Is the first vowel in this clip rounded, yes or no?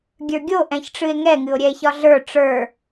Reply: no